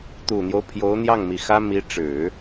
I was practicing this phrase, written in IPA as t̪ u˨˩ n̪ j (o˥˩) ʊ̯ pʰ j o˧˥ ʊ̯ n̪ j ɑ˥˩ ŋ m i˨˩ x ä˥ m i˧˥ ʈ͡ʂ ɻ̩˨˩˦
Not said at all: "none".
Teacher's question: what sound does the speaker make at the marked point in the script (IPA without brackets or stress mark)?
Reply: o˦